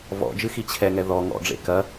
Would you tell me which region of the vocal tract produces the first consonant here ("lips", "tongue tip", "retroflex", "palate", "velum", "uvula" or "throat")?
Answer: lips